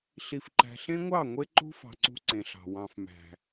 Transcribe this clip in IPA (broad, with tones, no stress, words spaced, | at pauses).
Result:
ɬi˨fǃæ̤˨ɬẽ˦ŋʷɑ˦˨ ŋʷe˦ǃṳ˦ fɑ̤˧ǀṳ˦ǀẽ˨ɬɑ̤˨ wɑ̃˨fmæ̤˨